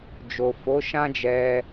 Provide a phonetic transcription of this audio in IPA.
d͡ʒo˨fo˨˦ʃã˦d͡ʒɛ˧

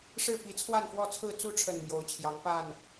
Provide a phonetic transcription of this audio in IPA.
ʂɻ̩˥˨pi˨˦ t͡sʰwa˥˨nfwɔ˥˨t͡sʰɹ̩˥˨ t͡su˥˨ʈ͡ʂʰə˨˩n mjo˨˦ʊ̯t͡ɕʰjɑ˨˦ŋ pa˥˨n

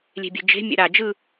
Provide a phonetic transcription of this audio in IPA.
lʲe̤bʲɛ̤d͡ʒe̤ mʲɛ̰ɾa d͡ʒɯ

